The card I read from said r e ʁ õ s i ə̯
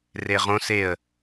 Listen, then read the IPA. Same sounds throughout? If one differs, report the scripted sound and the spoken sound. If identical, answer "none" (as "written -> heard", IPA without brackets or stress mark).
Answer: i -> e